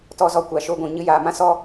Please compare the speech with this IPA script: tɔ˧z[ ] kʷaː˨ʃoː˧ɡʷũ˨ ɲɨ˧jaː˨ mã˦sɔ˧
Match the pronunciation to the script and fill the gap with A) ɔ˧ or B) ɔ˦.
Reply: A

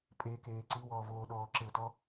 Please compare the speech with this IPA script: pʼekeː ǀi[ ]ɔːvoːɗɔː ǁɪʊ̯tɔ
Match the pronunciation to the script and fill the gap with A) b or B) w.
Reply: B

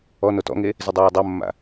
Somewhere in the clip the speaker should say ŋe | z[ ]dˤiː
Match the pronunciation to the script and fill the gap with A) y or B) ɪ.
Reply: B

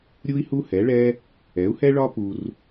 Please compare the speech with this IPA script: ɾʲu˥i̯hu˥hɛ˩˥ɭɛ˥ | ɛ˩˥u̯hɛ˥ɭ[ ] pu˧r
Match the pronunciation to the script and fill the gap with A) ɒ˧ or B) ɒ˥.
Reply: B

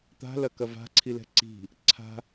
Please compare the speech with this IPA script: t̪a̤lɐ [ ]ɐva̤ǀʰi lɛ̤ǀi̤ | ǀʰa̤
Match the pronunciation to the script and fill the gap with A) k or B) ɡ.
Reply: A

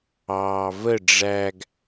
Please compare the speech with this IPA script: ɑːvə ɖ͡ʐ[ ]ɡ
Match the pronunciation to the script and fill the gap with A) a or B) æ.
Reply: B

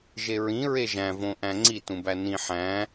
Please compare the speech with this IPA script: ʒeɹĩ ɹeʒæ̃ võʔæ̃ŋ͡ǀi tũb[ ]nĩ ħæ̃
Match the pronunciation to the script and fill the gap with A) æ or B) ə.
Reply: A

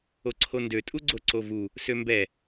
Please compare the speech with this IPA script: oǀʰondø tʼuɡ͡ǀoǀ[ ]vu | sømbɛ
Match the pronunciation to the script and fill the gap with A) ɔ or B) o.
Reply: B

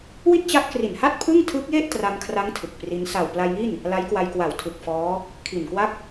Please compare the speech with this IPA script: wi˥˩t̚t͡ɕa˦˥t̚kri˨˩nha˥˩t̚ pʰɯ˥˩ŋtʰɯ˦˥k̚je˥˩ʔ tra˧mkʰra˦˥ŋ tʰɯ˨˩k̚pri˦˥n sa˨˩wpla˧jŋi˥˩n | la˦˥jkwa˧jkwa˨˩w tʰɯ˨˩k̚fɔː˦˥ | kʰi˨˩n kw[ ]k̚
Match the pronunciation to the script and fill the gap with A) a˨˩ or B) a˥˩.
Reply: B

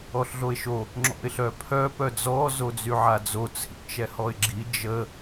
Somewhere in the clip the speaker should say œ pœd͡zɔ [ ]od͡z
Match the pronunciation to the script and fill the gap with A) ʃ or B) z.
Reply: B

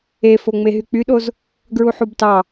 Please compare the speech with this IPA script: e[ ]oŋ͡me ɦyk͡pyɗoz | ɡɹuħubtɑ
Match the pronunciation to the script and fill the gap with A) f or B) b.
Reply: A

